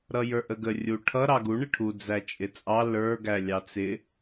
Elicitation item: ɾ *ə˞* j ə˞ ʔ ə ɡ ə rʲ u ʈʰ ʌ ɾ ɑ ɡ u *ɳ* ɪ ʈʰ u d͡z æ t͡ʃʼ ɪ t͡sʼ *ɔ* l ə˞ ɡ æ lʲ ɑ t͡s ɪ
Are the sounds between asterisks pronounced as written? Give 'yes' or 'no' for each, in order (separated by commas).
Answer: no, yes, no